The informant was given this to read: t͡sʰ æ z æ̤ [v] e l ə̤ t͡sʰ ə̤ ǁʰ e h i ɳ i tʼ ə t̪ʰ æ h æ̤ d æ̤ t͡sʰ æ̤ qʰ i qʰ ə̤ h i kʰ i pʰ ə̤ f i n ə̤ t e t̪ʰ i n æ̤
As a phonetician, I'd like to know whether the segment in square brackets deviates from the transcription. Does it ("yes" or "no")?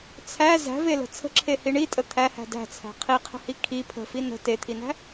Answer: no